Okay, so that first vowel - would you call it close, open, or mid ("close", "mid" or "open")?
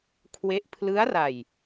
mid